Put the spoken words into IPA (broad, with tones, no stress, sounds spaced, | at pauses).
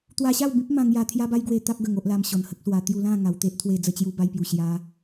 t̪ w a˧ ɕ a˥˧ w b ĩ˦ p̚ m ã˧ ŋ j a˧ t̪ʰ j a˦ b a˦ j ɡ w e˧ t̪ a˦ p̚ ɡ ə˧ ŋ o˦ ʔ l a˧ m ɕ ɔ˨˩ n h ə˦ k̚ s w a˧ t̪ j u˧ l ã˥˧ ŋ a˨˩ w t̪ e˦ ʔ t̪ʰ w e˧ d͡z ə˧ t͡ɕ j u˧ b a˧ j p j u˨˩ ɕ j a˧